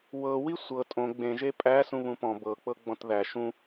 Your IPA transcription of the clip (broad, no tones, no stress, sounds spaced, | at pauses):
w ɤ w i sʷ ɤ tʼ õ ɡ͡b ẽ ʒ e pʼ æ s ũ β ũ p ɔ̃ b ɤ k͡p ɤ ɡ͡b ɔ̃ t ð æ ʃ ũ